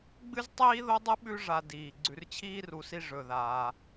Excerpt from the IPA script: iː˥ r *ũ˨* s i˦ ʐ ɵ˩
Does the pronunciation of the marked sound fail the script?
yes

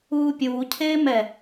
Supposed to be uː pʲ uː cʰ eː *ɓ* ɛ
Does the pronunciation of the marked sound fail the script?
yes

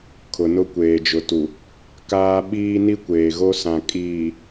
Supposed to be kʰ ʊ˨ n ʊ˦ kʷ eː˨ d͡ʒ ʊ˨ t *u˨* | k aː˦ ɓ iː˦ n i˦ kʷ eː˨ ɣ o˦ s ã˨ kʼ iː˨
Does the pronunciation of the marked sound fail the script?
no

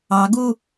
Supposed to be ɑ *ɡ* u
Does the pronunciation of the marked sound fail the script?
no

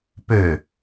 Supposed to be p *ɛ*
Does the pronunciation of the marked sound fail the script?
yes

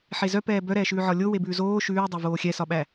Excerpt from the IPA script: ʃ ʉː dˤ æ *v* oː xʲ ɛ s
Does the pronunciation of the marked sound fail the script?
no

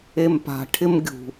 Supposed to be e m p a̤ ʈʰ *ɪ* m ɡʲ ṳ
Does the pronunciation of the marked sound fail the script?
no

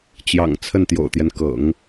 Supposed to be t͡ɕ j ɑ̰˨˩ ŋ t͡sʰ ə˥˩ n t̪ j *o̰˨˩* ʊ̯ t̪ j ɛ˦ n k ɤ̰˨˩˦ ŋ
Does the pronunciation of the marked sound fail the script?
no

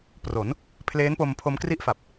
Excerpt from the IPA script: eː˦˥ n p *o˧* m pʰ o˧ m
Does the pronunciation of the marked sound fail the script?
no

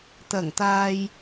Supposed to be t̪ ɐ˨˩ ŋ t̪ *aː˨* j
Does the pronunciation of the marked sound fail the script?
no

